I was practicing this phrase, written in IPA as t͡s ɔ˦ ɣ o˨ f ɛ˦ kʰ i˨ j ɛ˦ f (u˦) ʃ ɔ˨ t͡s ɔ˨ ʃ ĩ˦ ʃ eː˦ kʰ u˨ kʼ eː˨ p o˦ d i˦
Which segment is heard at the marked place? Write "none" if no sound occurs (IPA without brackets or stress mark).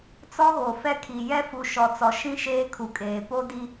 u˨